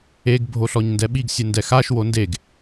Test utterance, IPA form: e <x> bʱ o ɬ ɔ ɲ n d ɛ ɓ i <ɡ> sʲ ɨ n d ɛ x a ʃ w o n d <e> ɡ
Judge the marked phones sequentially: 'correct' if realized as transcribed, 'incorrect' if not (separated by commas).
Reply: incorrect, correct, correct